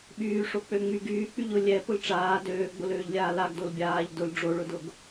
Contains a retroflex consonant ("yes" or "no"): yes